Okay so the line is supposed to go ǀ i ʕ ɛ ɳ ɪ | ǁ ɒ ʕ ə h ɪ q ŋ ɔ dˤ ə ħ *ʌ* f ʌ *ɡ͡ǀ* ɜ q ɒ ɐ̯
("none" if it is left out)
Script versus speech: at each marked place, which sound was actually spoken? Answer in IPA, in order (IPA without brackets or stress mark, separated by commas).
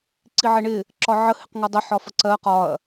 ɒ, ǀ